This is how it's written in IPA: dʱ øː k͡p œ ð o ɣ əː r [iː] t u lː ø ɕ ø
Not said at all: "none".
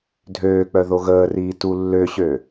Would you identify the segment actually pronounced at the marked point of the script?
iː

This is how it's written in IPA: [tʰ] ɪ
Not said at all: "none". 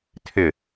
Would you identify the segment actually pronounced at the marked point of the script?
tʰ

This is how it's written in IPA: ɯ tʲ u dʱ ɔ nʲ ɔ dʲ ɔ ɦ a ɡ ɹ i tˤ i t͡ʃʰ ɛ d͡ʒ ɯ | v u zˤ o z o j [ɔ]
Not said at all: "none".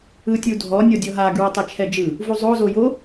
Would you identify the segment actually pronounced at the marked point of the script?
o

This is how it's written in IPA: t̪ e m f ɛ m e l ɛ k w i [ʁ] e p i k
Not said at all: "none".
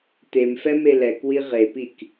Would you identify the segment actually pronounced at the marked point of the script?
ʁ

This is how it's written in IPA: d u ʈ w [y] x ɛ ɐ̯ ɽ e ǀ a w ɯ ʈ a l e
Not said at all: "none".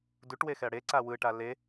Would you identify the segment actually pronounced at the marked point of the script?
e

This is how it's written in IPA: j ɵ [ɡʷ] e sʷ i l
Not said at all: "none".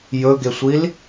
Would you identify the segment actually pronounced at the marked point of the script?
ɡ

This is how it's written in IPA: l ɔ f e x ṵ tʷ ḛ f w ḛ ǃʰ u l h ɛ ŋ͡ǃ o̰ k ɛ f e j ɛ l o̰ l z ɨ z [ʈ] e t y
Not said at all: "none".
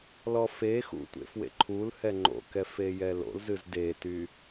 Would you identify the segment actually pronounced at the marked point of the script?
d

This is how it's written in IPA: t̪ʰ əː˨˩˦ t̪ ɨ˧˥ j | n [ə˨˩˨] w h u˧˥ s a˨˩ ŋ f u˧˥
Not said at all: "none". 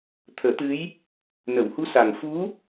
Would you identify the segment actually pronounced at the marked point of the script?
ə˨˩˨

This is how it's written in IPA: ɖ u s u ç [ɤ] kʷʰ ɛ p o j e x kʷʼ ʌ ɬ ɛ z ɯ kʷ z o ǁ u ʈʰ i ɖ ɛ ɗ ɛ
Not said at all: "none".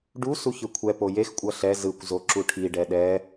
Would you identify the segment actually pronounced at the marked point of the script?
ɯ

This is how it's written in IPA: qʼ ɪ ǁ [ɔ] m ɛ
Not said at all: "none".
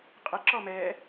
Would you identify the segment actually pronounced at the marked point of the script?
ɔ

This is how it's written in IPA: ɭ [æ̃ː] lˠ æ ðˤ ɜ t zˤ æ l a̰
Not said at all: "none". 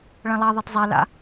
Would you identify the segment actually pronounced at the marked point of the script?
æ̃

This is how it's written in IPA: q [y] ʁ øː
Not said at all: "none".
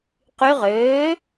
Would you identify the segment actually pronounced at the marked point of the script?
y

